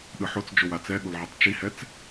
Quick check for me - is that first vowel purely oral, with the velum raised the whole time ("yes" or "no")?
yes